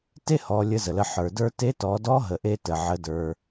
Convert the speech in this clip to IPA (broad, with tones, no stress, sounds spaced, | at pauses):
t e˥ h ɔ˩˧ lʲ ə˧˥ z ə˩ l ə˧ ħ ə˞˩ d ə˞˧ t e˧˥ t ɔ˩˧ d ɔ˧˥ ɦ ə˩˧ ʔ e˧ t ə˩ ʕ ə˩˧ d ə˞˩